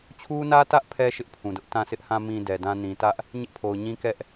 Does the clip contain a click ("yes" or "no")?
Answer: no